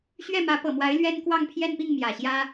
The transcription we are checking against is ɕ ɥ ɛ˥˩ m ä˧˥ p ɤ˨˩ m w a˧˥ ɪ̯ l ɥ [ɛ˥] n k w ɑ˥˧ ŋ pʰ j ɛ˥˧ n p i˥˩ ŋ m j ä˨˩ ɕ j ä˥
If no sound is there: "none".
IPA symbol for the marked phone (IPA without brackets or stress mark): ɛ˥